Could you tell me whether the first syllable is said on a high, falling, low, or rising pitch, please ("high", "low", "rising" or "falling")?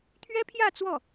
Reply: high